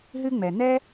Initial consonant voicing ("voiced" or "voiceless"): voiced